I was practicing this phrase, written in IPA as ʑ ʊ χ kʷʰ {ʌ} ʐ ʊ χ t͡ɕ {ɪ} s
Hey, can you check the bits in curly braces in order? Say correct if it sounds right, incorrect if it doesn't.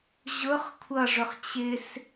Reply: correct, correct

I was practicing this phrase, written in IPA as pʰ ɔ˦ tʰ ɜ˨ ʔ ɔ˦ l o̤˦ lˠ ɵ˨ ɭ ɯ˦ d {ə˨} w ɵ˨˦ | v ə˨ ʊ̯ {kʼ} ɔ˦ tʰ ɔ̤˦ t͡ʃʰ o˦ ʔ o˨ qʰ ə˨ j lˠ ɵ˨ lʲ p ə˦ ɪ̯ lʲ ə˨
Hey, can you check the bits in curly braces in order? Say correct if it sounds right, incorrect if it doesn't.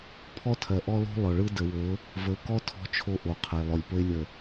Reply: correct, incorrect

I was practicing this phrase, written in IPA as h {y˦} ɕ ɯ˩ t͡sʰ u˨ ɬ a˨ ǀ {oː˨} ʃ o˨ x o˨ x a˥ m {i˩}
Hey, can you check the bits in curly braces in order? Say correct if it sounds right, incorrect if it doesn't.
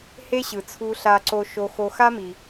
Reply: incorrect, incorrect, correct

